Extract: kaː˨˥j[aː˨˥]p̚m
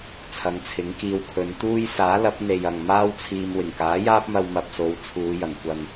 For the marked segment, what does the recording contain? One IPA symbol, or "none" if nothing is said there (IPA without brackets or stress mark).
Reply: aː˥